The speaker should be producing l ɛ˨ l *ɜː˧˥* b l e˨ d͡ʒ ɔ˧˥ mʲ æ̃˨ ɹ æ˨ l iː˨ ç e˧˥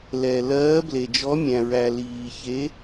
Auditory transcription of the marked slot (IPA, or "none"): ɜː˧˥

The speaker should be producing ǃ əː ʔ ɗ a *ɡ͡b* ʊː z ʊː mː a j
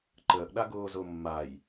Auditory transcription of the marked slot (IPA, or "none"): ɡ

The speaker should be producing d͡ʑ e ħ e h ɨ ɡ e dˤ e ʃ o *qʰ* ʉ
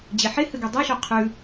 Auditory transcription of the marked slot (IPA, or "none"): qʰ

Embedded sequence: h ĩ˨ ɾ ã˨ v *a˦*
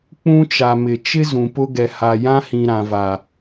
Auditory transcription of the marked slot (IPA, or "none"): a˨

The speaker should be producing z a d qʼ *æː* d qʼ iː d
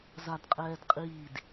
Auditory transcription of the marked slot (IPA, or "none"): ɛː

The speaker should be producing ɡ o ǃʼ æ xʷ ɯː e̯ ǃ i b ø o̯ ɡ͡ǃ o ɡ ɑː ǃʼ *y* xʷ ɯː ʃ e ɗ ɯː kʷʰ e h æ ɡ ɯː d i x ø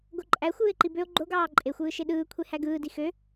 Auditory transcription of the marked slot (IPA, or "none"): e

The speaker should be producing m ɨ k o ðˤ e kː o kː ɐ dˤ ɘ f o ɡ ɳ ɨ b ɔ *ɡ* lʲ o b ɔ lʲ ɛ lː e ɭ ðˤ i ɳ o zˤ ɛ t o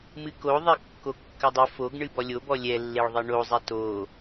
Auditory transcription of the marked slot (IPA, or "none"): none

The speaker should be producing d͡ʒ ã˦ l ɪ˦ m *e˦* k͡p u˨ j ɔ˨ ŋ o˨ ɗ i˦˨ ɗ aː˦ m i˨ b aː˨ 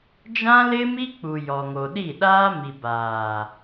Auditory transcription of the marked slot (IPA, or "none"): i˦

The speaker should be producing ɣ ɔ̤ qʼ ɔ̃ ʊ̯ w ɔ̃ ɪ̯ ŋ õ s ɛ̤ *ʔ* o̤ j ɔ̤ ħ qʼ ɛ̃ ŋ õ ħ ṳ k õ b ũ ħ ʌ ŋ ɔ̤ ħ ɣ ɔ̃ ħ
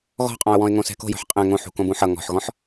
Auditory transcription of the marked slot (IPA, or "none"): k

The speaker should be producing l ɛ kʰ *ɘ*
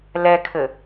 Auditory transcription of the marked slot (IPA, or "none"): ɘ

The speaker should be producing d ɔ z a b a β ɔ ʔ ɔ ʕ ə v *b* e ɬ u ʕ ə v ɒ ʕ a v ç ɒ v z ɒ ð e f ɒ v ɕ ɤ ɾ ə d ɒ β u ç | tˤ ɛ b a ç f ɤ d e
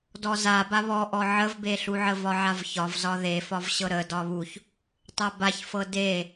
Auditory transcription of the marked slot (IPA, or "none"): b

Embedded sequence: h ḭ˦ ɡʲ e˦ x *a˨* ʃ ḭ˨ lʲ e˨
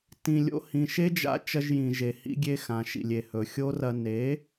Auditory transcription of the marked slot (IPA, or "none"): ã˨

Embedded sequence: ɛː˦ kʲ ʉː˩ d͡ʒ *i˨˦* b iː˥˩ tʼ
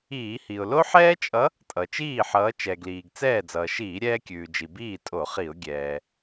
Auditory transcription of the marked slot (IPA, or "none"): i˩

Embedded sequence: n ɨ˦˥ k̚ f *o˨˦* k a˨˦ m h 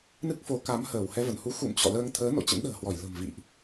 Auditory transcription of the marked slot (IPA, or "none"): o˨˦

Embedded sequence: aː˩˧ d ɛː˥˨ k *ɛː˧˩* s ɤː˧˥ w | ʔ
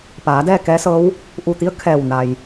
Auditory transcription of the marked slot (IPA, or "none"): ɛː˧˥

